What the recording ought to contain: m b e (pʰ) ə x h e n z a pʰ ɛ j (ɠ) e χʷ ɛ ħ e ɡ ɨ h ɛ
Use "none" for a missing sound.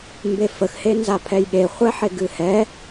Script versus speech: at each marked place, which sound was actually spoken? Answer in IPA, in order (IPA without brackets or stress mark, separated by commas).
f, ɠ